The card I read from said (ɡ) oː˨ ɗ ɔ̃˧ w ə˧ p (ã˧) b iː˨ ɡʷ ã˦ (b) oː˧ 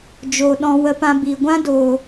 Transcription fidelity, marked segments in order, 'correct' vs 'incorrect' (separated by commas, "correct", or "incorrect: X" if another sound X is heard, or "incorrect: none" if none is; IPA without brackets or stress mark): incorrect: d͡ʒ, correct, incorrect: d